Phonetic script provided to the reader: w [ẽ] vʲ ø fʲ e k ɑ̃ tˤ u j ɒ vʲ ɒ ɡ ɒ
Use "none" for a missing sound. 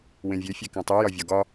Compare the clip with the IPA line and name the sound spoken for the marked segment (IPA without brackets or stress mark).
ẽ